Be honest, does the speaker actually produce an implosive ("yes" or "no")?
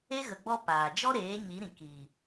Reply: no